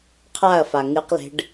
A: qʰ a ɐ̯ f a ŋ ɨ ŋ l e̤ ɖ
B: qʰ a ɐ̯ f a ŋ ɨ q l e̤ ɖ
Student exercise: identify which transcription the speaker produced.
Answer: B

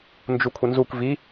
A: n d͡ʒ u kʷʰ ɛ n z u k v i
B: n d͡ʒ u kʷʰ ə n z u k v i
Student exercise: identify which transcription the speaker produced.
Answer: B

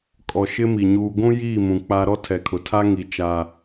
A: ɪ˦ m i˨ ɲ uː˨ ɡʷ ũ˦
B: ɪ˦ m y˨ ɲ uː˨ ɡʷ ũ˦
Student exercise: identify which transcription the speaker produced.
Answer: A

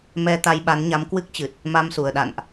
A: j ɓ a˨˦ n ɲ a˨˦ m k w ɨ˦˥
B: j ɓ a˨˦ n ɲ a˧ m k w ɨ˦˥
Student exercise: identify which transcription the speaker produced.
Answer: A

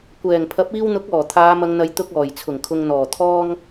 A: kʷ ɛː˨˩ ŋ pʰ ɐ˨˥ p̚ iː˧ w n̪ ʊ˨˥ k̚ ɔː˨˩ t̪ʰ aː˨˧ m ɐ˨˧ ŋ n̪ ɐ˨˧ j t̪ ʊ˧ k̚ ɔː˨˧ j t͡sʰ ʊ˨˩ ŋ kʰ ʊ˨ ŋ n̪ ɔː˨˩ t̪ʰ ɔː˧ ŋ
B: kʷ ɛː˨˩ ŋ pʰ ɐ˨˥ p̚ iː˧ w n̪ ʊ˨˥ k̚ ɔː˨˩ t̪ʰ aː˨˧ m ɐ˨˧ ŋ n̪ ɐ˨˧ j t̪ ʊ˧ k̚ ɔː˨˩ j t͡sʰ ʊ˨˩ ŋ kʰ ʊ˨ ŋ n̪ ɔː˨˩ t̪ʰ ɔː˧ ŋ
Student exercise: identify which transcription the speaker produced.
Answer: B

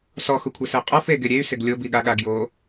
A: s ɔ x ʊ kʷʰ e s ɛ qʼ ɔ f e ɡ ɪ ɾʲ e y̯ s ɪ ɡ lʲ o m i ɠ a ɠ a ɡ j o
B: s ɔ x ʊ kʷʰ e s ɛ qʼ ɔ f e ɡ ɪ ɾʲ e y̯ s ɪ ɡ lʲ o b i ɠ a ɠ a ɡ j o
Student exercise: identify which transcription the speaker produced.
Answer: B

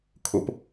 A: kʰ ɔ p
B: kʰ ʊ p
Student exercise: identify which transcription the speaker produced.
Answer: B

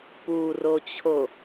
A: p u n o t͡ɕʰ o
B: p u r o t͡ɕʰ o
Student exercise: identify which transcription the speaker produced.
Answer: B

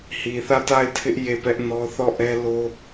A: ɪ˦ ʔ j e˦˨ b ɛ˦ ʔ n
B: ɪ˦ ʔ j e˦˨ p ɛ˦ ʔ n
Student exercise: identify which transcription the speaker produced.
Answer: B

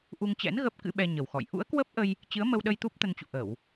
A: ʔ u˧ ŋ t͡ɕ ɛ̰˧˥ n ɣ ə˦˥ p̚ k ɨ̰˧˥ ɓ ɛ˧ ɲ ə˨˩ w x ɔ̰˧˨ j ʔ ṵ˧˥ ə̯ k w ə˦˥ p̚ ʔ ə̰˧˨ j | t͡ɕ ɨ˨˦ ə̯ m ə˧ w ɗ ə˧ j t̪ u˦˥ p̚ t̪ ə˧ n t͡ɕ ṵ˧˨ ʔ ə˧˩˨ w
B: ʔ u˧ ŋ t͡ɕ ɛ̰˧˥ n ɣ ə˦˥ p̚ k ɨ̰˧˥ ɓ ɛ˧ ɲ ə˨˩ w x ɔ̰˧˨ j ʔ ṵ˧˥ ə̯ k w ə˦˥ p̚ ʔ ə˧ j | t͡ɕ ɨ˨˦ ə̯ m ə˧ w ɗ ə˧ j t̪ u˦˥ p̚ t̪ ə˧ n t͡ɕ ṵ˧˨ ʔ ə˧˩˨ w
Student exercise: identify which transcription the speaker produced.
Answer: B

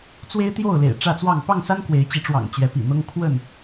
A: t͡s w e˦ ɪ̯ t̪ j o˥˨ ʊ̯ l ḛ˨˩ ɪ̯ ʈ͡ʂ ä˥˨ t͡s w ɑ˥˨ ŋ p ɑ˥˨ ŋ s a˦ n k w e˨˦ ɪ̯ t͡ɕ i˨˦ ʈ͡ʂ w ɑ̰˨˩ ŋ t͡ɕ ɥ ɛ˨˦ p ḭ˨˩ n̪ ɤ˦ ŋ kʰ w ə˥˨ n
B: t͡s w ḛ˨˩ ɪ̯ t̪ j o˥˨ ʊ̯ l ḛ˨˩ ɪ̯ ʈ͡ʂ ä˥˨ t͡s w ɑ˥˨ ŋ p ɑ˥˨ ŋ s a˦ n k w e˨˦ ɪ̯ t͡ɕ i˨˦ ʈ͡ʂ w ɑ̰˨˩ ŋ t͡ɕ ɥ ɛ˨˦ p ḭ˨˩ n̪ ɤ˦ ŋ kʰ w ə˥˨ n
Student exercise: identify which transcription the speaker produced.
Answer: A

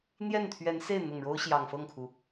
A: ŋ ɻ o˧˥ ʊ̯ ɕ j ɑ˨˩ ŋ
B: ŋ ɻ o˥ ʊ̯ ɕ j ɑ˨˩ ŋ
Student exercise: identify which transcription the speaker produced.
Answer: B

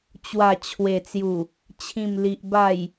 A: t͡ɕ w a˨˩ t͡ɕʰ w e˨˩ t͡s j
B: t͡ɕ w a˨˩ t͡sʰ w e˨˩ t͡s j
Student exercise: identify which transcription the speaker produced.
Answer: A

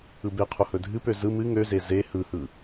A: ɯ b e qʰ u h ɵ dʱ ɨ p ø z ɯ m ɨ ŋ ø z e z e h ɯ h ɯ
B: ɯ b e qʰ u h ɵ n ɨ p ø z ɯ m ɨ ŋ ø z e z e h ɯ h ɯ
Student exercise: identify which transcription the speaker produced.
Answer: A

